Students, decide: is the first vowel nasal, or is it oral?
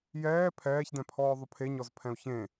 oral